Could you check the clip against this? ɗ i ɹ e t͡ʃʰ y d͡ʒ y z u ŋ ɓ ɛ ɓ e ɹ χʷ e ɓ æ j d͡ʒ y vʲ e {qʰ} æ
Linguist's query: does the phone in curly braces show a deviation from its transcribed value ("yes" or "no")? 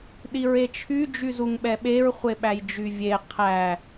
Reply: no